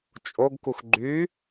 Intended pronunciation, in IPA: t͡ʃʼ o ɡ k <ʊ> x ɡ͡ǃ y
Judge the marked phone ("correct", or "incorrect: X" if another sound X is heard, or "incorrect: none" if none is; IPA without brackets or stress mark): incorrect: u